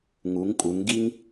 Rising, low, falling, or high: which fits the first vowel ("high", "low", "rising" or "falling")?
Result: rising